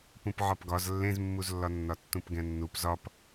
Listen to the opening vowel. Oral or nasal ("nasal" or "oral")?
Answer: nasal